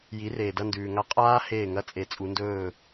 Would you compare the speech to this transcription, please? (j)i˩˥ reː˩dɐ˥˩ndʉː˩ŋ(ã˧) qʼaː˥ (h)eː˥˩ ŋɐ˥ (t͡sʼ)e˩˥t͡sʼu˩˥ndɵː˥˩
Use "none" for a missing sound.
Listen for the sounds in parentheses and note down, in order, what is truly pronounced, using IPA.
j, a˧, h, t͡sʼ

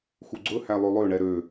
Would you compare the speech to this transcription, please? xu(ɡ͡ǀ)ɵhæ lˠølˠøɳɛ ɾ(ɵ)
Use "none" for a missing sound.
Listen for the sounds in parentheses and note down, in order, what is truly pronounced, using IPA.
ɡ͡ǀ, ø

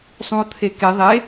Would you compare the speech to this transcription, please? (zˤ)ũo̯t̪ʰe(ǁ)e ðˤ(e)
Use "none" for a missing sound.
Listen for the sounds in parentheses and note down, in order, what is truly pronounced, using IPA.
sˤ, k, e

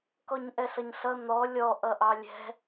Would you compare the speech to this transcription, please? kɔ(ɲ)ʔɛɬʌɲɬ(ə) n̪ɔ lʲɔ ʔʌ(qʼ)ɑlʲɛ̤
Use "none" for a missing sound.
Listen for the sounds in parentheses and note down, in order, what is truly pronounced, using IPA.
ɲ, ʌ, ʔ

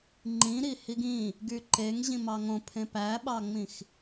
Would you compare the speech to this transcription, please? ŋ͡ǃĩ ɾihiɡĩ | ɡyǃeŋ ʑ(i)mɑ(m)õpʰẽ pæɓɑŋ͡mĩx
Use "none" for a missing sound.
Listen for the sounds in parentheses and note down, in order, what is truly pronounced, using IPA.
ĩ, ŋ

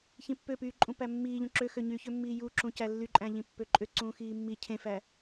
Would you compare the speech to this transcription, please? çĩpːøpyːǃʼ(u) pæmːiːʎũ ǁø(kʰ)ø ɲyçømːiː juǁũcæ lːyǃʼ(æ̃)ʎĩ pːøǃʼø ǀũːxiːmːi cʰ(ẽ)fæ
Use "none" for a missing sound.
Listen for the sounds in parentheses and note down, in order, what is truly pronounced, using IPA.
ũ, x, æ̃, ẽ

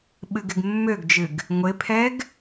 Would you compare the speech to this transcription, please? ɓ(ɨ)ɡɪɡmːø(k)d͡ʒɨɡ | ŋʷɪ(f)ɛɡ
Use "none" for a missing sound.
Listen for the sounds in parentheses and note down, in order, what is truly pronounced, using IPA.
ɨ, ɡ, pʰ

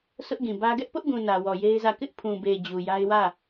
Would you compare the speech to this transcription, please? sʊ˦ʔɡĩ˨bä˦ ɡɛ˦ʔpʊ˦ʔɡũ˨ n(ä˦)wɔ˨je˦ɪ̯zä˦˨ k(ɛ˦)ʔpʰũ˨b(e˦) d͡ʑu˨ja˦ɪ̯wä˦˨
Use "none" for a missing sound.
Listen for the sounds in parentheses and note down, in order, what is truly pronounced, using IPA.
ä˨, ɪ˦, e˨

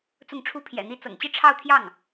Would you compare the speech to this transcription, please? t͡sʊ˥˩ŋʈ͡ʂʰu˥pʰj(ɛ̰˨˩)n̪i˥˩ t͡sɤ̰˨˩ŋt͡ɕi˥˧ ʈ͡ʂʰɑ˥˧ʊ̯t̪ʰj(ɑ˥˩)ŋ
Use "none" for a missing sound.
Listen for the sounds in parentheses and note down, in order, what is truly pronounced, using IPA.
ɛ̰˨˩, ɑ˥˩

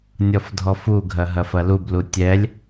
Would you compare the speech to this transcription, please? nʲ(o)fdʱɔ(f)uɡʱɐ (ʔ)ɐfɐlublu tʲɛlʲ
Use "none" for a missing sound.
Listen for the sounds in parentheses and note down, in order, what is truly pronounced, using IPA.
ɔ, f, ɦ

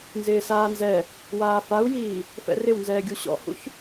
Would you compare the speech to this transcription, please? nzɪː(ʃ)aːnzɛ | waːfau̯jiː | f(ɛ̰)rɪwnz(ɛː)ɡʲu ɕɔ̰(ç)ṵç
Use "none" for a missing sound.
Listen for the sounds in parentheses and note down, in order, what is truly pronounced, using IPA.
s, ɛ̰, ɛː, h

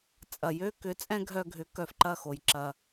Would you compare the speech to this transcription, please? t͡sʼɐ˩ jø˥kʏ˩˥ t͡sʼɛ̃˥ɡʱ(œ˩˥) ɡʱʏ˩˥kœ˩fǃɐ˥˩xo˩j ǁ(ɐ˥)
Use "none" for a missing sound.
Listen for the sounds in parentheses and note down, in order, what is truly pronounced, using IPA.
œ˧, ɐ˩

